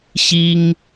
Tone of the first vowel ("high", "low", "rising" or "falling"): high